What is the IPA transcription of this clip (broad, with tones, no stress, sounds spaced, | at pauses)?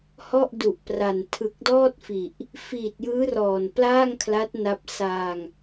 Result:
h ɔ˥˩ ʔ d u˨˩ ʔ p r a˨˩ n tʰ ɯ˨˩ k̚ d ɔː˥˩ t̚ f i˨˩ ʔ | f iː˨˩ t̚ j ɯː˦˥ r ɔː˨˩ n p l aː˥˩ ŋ kʰ l a˦˥ t̚ n a˦˥ p̚ s a˧ ŋ